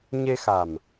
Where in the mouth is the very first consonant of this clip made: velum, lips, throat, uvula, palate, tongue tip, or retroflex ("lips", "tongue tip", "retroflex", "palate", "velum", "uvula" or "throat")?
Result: palate